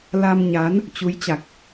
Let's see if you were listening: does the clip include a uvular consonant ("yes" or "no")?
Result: no